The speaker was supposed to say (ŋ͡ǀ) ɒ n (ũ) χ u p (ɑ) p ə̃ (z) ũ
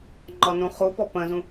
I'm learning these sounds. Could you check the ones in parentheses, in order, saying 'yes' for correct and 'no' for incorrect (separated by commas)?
no, yes, no, yes